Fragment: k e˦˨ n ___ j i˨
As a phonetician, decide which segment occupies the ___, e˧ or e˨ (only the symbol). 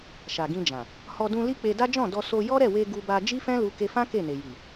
e˨